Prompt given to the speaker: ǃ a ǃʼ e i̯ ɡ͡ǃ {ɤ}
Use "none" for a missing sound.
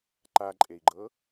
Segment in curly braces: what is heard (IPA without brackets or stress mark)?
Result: ɤ